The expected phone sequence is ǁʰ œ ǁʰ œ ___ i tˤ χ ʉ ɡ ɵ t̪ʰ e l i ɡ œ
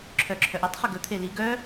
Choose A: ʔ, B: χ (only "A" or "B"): A